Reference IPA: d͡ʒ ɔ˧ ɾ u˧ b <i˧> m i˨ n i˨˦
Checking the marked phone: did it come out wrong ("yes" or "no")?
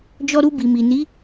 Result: yes